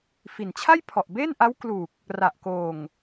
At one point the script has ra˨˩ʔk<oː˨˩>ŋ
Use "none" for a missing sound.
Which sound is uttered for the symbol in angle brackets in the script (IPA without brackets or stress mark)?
oː˨˩